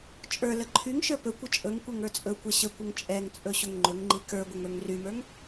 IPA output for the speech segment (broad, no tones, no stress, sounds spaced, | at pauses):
t͡ʃʼ ə˞ l ə ǃʰ y ŋ ʃ ə˞ p ɵ kʷ ə t͡ʃʼ ɵ ŋ kʷ ɛ ŋ ə˞ t͡sʼ ɵ kʷ ɛ ɕ ə kʷ ə ŋ t͡ʃʼ ɛ ŋ t͡sʼ ɵ ɕ ɵ ŋ ŋ͡ǃ ɵ ŋ ŋ͡ǃ i k ə˞ ɡʷ ə ŋ ə˞ ŋ r y m ə˞ ŋ